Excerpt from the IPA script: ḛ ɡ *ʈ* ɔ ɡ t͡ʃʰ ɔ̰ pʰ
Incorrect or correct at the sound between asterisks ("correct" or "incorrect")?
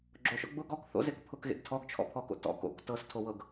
incorrect